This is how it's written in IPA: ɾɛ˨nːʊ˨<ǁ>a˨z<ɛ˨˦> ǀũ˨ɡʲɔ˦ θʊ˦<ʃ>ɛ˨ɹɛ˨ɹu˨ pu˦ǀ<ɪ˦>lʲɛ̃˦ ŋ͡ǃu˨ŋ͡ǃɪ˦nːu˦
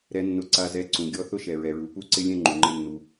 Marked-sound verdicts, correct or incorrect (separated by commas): incorrect, correct, correct, correct